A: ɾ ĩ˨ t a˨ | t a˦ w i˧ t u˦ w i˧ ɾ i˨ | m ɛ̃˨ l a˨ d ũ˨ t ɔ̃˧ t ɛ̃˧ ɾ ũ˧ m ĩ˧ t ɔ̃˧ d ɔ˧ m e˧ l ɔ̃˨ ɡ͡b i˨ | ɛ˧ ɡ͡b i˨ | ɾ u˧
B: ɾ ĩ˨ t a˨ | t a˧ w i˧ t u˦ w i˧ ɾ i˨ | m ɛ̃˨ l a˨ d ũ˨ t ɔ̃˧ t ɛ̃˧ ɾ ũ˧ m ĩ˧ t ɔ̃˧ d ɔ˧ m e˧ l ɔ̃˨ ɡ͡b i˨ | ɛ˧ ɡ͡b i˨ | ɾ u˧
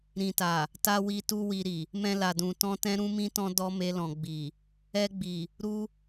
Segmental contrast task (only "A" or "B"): B